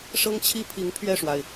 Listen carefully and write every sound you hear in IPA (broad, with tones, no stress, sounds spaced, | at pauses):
ʂ ɤ˥ ŋ t͡ɕʰ i˥ pʰ i˧˥ ŋ pʰ ɥ ɛ˥˩ ʂ w a˩ ɪ̯